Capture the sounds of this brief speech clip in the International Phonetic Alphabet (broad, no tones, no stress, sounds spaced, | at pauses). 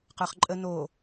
q ə˞ χ ǃʼ ə n o